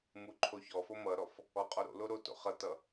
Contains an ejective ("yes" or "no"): yes